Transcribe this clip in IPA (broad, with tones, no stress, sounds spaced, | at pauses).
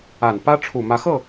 a˨˩ n p ä˥ ʈ͡ʂʰ u˨˩ m ä˧˥ x ɤ˥˩